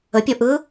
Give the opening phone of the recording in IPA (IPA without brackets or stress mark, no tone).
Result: ə